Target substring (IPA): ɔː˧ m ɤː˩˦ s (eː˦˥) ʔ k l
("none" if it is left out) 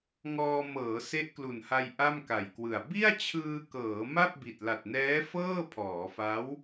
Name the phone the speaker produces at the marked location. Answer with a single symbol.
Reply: e˦˥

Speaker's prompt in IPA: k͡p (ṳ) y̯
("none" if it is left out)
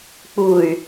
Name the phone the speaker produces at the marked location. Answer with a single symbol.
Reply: u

